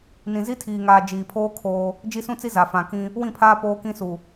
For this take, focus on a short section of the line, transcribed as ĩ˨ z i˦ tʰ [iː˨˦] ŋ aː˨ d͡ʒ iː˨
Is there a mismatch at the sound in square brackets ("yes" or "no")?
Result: yes